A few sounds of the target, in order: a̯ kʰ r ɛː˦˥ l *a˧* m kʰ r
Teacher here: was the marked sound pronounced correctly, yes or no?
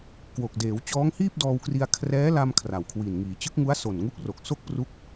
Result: yes